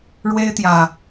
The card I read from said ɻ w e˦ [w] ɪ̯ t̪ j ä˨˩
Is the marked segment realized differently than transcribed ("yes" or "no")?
yes